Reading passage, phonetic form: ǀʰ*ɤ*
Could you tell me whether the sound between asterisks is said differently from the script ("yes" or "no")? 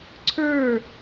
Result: yes